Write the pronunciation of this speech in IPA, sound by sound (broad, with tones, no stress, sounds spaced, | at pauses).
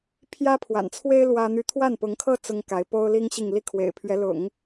pʰ j ä˥ pʰ w a̰˨˩ n t͡sʰ w e˥ ɪ̯ l w ä˥ n̪ y˥˧ t̪ʰ w a˥˩ n p ʊ˧˥ ŋ kʰ ɤ˥ t͡s ʊ˥ ŋ k a˧˥ ɪ̯ p o˥ ʊ̯ l i˥ ŋ ɕ i˥˧ ŋ l i˥˩ kʰ w ḛ˨˩ ɪ̯ pʰ ɥ ɛ˧˥ l ʊ̰˨˩˦ ŋ